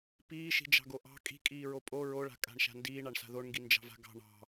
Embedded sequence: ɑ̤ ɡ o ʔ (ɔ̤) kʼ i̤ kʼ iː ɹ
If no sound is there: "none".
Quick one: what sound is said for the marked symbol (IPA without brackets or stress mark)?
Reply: ɑ̤